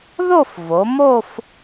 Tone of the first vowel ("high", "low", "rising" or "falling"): falling